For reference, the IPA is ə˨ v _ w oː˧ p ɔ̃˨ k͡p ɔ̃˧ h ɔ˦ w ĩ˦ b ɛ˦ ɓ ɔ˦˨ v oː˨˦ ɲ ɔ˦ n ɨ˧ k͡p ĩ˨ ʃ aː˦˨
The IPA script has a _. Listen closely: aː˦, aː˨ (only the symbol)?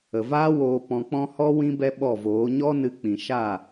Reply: aː˦